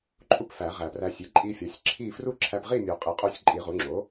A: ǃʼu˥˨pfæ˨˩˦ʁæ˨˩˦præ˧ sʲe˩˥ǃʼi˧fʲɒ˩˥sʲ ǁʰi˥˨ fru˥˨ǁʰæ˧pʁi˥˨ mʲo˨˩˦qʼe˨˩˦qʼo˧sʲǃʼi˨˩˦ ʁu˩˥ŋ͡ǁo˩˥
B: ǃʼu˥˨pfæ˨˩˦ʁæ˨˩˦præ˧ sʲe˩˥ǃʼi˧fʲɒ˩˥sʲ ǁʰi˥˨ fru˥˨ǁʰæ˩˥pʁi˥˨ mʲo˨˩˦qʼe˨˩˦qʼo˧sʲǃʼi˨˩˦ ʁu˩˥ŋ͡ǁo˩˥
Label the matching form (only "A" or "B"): A